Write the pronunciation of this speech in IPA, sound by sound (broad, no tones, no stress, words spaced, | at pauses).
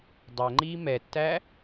dˤɜŋ͡ǃiː mɛtːæ